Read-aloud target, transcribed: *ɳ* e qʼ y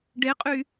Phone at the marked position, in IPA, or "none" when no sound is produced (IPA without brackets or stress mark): ɖ